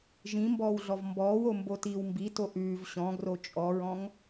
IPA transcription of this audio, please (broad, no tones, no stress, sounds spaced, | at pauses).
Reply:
ʒ ĩ m b ɔː w ɮ ɔ v m b ɔː w o m b o t iː w m b i t o ʔ ʉː v ɕ ɔ̃ ɡ r o t͡ʃʼ ɔ ɹ ɔ̃ ŋ